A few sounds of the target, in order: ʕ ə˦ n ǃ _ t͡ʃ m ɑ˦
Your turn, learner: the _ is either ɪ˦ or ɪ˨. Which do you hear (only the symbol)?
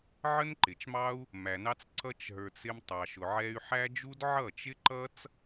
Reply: ɪ˨